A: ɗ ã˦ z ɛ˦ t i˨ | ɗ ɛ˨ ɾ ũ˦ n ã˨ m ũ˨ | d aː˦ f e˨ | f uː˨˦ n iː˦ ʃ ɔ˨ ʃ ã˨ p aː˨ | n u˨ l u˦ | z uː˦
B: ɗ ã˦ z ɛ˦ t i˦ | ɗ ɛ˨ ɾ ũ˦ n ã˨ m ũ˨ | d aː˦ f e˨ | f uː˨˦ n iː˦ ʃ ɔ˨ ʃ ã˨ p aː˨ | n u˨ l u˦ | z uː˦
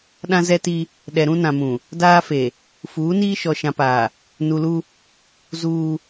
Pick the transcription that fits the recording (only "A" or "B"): B